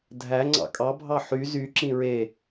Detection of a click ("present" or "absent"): present